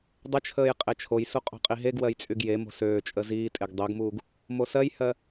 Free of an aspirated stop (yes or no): no